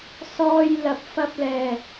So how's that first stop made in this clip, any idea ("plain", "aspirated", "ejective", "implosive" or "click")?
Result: plain